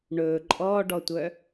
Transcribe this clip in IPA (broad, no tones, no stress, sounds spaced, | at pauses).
ɳ ɵː ǃʼ ɔː ɖ ɔ tʷ œ